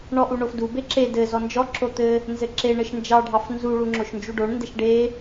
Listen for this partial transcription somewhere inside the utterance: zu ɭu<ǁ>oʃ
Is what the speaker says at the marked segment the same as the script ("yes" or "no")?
no